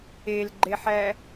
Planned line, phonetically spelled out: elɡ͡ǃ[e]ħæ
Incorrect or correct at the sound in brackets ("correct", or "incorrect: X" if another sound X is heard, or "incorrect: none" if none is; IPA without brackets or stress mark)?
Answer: correct